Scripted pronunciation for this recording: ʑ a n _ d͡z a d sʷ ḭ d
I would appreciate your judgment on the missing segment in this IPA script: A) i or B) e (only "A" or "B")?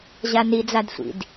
A